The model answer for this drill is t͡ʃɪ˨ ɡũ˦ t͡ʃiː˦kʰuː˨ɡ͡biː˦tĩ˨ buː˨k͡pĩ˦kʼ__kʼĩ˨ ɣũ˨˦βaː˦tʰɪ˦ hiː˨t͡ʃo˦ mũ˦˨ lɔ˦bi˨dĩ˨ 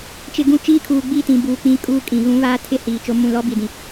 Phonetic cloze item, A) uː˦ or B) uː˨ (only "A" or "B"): A